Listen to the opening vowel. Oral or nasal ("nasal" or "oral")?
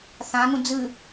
nasal